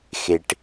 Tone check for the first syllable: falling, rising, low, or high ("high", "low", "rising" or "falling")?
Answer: low